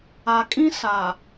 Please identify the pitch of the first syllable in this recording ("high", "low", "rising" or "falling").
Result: low